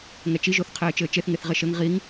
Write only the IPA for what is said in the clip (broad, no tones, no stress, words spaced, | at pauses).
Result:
ŋɛt͡ʃi ʒoθqʰeːt͡ʃɘːt͡ʃeθ ŋeθʁeʃɘŋ ʁiŋ